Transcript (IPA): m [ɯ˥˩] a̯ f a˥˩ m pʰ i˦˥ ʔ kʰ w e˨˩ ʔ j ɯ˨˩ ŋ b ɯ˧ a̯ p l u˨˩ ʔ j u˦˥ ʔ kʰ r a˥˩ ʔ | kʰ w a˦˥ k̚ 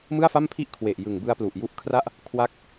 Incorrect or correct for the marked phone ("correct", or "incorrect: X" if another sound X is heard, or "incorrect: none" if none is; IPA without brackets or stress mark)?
correct